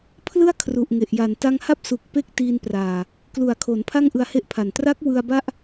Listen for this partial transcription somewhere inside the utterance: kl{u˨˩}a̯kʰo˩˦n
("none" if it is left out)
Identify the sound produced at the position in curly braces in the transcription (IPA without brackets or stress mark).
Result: u˨˩